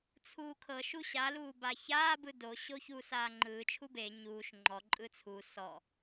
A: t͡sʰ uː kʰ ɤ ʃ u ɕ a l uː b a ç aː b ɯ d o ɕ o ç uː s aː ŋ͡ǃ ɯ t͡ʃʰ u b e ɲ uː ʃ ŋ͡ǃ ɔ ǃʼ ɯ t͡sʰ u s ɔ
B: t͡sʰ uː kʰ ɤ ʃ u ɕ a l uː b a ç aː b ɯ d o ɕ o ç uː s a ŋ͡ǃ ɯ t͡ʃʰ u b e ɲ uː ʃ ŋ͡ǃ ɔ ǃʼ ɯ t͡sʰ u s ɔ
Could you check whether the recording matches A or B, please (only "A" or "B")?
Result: A